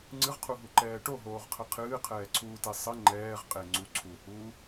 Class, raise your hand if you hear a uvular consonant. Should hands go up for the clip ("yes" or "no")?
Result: yes